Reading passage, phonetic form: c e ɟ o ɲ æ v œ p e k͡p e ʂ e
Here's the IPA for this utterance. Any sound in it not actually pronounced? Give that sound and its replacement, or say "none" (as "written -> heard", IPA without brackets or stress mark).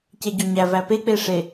œ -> æ